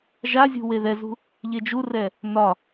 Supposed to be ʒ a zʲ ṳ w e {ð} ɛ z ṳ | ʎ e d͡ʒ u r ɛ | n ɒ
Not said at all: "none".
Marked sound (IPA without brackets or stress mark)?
ð